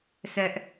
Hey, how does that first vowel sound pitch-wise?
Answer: high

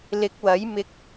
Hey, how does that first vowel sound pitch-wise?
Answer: rising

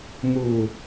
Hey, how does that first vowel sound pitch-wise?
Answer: low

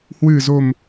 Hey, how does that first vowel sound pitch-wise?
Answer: low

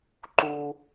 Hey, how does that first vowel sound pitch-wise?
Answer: high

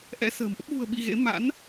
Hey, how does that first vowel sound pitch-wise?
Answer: rising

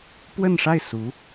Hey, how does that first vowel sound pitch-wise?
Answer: falling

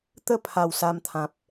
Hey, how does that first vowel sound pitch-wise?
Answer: high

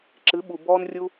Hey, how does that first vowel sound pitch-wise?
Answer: rising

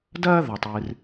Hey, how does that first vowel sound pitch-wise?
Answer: high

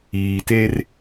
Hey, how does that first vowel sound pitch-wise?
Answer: low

